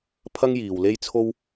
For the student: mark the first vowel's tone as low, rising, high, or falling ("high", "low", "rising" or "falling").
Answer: high